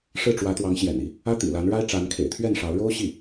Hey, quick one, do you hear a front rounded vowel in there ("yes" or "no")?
no